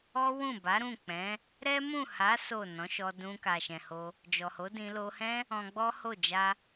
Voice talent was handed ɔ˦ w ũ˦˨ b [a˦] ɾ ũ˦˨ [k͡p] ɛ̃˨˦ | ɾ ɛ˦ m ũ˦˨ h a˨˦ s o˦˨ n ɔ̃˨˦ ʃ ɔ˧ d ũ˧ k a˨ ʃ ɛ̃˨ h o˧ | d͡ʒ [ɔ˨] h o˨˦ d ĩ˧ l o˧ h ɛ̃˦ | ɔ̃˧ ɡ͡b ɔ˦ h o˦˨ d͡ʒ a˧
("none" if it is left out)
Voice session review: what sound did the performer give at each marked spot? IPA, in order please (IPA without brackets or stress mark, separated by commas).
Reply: a˨˦, k͡p, ɔ˨